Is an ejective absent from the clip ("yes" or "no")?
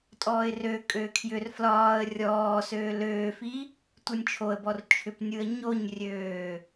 no